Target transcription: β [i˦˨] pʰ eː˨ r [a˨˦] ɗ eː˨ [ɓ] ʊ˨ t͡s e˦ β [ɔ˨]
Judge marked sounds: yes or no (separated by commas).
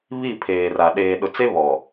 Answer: yes, no, no, yes